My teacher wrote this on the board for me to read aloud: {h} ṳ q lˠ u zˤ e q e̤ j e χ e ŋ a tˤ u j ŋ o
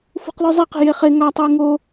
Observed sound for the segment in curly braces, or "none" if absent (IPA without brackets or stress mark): f